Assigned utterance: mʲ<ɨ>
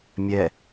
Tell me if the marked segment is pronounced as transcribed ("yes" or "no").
no